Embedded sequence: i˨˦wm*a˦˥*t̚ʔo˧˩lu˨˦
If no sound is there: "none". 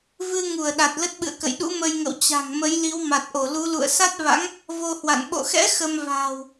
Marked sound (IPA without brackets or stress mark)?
a˨˩